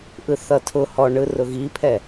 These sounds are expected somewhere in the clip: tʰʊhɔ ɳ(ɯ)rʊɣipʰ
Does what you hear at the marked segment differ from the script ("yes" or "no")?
no